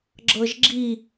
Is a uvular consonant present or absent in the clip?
absent